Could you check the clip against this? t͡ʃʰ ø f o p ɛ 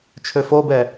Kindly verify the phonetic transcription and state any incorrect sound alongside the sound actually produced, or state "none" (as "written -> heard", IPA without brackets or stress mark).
p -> b